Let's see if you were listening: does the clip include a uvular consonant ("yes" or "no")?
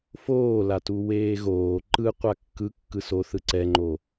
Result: yes